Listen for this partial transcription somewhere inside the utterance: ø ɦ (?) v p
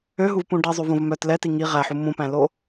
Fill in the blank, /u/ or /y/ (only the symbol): u